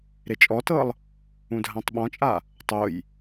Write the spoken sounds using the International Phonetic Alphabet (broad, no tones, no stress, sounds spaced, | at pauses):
ɾ e t͡ʃʼ ɔ t ɤ lˠ | ũ dʱ ã tˤ ɓ ɔ̃ t͡ʃʼ a | tˤ o j